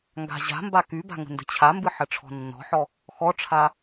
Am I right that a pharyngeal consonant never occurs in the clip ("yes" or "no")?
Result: no